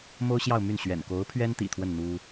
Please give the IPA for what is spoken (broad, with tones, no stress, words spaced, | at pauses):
mo˥ʊ̯ɕjɑ˥˧ʊ̯ my˥˩n ɕɥɛ̰˨˩n ko˧˥ʊ̯pʰɥɛ˥nt̪ḭ˨˩ t̪ʰwə˥˩n n̪u˥